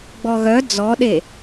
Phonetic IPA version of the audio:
ɡ͡b ɔ ɣ œ d͡z ɔ ɗ e

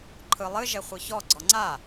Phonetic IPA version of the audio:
ǃʰ ɯ lˠ ɨ ʒ ɛ χʷ ɯ ç ɔ ɡ͡ǀ ɔ ŋ͡ǀ a

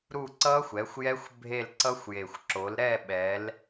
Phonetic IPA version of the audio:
ɾ u˦˨ ǀ ʌ˦˥ xʷ ɛ˩˧ xʷ j ɛ˦˥ xʷ bʱ e˦˨ l ǀ ʌ˦˥ xʷ j e˨˩ xʷ ǁ o˩˧ l ɾ ɛ˦˨ ɓ ɛ˩˧ l

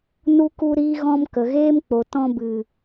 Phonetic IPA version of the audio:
n u˧ k u˧ ɾ iː˧ ɣ ɔ̃˧ m k ə˨ ɣ eː˦ m k͡p o˨ t ɔ̃˧ b ɨ˨

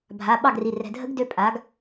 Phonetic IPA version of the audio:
bʱ a˩˧˩ ɓ ɑ˥˩ ɡ r i˩˧˩ r ɛ̤˩˧˩ dʱ ə˦˥ ɡ d ø˦˥ pʼ a˩˥ ɡ

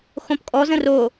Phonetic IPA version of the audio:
x õ p kʼ ɔ z ə̃ r o

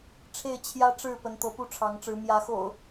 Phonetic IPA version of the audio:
ʈ͡ʂʰ e˥˨ ɪ̯ t͡ɕʰ j ä˦ ʈ͡ʂ ɻ̩˥˨ p ə˨˦ n t̪ ɤ˨˦ p u˦ ʈ͡ʂʰ ɑ˨˦ ŋ ʈ͡ʂ ɻ̩˨˦ m j ä˨˦ x o̰˨˩ ʊ̯

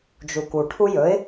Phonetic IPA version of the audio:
d͡ʒ u k u ʈʰ u j ɵ ɪ̯

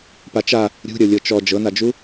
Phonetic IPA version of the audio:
p a t͡ʃ a | ɾʲ ṳ ɾʲ ɤ lʲ ɤ t͡ʃ ɔ d͡ʒ ɤ n a d͡ʒ u

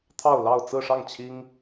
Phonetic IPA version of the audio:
t̪ʰ ɑ˥˧ ʊ̯ l ɑ˥˧ ʊ̯ t͡s ɹ̩˥˧ ʂ ɑ˥˩ ŋ t͡ɕʰ i˥ ŋ

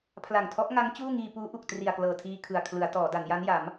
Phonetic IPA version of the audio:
pʰ l a˨˩ ŋ tʰ ɔ˦˥ ʔ ŋ a˦˥ ŋ t͡ɕ uː˥˩ ŋ iː˧ p uː˦˥ ʔ u˨˩ k̚ t r i˨˩ a̯ k l ɤː˨˩ tʰ iː˧ kʰ ɯ˨˩ a̯ kʰ l ɯ˩˦ a̯ t ɔː˩˦ d a˩˦ n j a˦˥ n j a˩˦ m

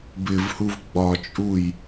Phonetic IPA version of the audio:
b ɪ v h u v ɡ͡b ɒ t͡ʃʼ u j

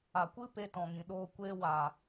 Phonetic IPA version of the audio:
a˨ kʷ ɨ˦ p e˧ t ɔ̃˨ ŋ ĩ˨ ɗ oː˧ kʷ eː˧ w aː˨

